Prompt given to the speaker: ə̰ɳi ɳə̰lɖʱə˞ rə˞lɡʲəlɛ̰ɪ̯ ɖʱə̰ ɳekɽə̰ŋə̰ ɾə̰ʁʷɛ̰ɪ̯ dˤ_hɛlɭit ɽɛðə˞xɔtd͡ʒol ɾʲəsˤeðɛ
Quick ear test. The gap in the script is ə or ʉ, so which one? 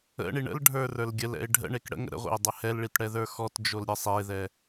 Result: ə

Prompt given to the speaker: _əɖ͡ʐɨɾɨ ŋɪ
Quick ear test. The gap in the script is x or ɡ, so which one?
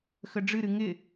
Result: x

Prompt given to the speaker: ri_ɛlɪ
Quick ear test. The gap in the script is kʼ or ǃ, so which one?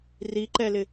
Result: ǃ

